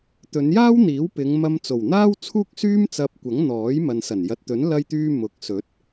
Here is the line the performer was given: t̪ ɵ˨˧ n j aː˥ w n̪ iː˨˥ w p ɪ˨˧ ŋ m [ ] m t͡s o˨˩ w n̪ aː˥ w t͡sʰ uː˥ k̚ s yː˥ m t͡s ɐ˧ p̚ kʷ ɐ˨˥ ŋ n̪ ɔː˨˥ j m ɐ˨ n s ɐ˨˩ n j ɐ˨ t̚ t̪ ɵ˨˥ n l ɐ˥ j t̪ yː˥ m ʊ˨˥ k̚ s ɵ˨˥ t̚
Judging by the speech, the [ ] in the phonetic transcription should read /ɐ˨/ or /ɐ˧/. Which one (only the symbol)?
ɐ˧